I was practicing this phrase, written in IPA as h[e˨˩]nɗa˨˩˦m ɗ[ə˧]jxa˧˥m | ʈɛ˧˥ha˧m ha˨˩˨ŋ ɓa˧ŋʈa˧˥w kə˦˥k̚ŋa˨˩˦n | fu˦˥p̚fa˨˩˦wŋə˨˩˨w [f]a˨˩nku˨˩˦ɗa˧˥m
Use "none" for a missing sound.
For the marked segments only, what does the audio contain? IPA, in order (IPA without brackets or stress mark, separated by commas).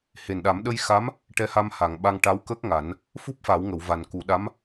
e˨˩, ə˧, v